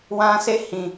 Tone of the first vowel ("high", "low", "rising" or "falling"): high